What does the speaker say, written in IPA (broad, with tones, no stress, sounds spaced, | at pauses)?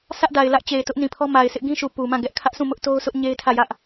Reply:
sʰ ä˦ ʔ d a˨ ɪ̯ l ä˦ ʔ t͡ɕ e˨ ɪ̯ t ʊ˦ ʔ n ĩ˨ pʰ ɔ˦ m a˨ ɪ̯ sʰ ɪ˦ ʔ ɡ ĩ˦ ʃ u˨ p u˨ m ã˦˨ ɡ ɛ˦ ʔ kʰ ä˦ ʔ s ũ˦˨ m ʊ˦ ʔ t o˦ ʊ̯ sʰ ʊ˦ ʔ ɲ e˦ ɪ̯ tʰ ä˦˨ j ä˦ ʔ